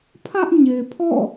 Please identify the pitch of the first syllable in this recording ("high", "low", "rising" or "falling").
high